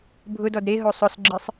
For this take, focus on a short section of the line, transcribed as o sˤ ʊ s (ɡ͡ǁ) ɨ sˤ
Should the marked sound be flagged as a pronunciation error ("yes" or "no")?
no